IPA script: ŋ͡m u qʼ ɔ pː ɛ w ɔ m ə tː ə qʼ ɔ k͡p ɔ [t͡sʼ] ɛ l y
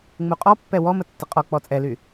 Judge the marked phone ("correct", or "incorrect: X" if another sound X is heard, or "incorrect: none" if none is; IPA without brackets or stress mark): correct